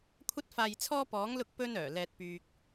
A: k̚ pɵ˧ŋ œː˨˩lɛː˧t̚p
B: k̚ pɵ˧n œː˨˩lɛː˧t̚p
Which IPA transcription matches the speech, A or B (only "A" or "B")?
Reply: B